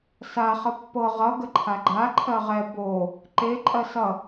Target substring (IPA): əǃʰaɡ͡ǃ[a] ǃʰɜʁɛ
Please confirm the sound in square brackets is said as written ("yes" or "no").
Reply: yes